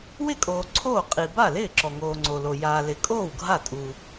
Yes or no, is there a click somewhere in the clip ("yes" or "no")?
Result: yes